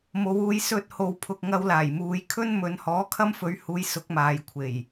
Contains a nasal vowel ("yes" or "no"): no